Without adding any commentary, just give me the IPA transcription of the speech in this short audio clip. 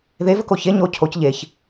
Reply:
ð e v ə k o ç e ɲ o cʰ o c ʎ e ç

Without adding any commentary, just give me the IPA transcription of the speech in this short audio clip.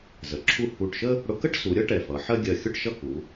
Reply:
z ə˩˧ ǁʰ u˥˧ h u˧˩ ʈ ʃ ə˥ | ɽ ʊ˧ k ə˥ ʈ s u˩˧ ɾʲ ʌ˥ ʈ ɛ˧˩ f ʌ˩˧ ħ ɜ˥ ɡʲ ɜ˧˩ xʲ ʊ˥˧ ʈ ʃ ʌ˥˧ k u˩˧

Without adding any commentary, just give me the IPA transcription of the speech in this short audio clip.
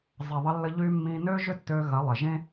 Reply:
zˤ ɪ˨ ðˤ ə˧ lː ə˧ ʎ y˧ mː ĩ˧ n ø˦ ʒ ʏ˦ tː ø˧ ɣ ɐ˨˦ lˠ ɪ˨ ʒ ẽ˦

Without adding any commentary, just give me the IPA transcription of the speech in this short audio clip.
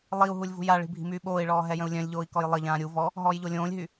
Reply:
lˠ i u̯ ɦ u lʲ v ṳ j a ɭ i̤ bʱ i̤ m yː ɓ oː i̯ ɭ ɔː ɦ ɛ j ə̃ u̯ lʲ œ̃ lʲ ʎ oː i̯ k ɔ j lˠ ə ʎ ãː ɾʲ u v ɔ | ɦ ɔː j ʎ o lʲ õː lʲ ɦ y

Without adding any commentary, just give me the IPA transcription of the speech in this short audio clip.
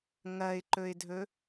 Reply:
ŋ ɐ ɪ̯ ǃ ɵ ɪ̯ dʱ ɵ

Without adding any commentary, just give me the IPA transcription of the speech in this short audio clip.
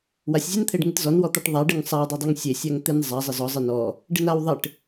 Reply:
w a sʲ zʲ e n t̪ʰ e ɖ ŋ ɪ t z ɔ n w ɔ t̪ a ʈ ðˤ a ɖ ɪ ŋ sˤ a w dˤ e dˤ a ŋ sʲ e sʲ a ŋ t̪ ɪ n zˤ a zˤ ɪ z ɔ zˤ ɪ n ɔ | ɖ ɪ n a w ðˤ ɪ ʈ

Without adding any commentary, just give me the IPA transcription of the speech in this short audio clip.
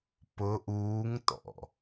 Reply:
p ʊ ʔ uː ŋ t ɔ̰

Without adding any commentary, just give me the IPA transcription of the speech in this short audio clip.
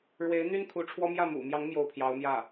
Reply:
ɻ w e˧˥ ɪ̯ n̪ y˥ n kʰ u˧˥ ʈ͡ʂʰ w ɔ˥ m j ä˥˩ m ṵ˨˩ m j ɑ˧˥ ŋ m j o˥˩ ʊ̯ pʰ j ɑ˧˥ ʊ̯ m j ä˥˩

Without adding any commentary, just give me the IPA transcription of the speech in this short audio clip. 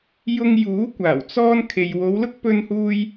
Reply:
j ʊ˧ ŋ j uː˨˥ kʷ aː˨˩ w t͡s ɔː˥ n kʰ e˨ j w o˨˧ w l ʊ˥ k̚ p ɵ˥ n h uː˥ j

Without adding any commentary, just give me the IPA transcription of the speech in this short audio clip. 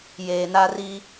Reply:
j eː˨ n a˦ r i˦

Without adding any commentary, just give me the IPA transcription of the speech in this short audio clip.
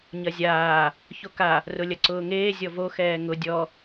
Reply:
ɲ ɐ zʲ aː | ç o k a | r ʊ lʲ ɐ ǀ ʊː ŋ eː zʲ ɔ v o x ɛː ŋ ʊ dʲ ɔ

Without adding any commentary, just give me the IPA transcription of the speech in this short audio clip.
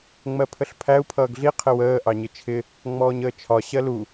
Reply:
ŋ͡m ɜ pʰ ə ɬ pʰ æ u̯ pʰ ʌː ɡ ɮ i qʰ ɪ w əː ʔ ɑ ɲ ɪ t͡ʃʰ ɪ | ŋ͡m ɔː ɲ əː t͡ʃʰ ɒ ɕ ɜ l u

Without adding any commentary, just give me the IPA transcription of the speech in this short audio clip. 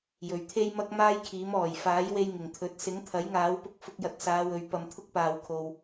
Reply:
j ɵ˨ ɥ t̪ʰ e˥ j m ɐ˥ k̚ m aː˥ j kʰ iː˨˥ m ɔː˨˩ j f aː˨˥ j w e˧ j ŋ ɪ˨˩ ŋ t̪ʰ ɵ˨˥ t̚ s ɪ˨˥ ŋ t̪ʰ ɐ˨˥ j ŋ aː˨˥ w p ʊ˧ k̚ f ʊ˧ k̚ j ɐ˨˥ t̚ s aː˨˧ w ɵ˨˧ ɥ p ɐ˧ m t̪ʰ ʊ˥ k̚ p aː˧ w kʰ o˧ w

